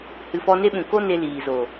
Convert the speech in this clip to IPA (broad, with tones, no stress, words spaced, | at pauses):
hɨ˨fɔ˧ne˦ɓũ˨ ko˦ne˧ liː˨zo˨